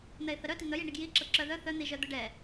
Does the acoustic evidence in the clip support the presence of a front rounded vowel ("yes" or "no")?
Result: yes